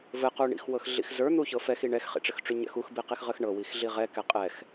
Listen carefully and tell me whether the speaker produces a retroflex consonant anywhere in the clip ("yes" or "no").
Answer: yes